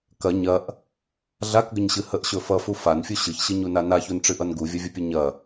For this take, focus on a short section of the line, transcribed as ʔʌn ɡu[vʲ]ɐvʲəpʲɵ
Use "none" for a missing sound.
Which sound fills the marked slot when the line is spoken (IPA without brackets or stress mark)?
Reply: vʲ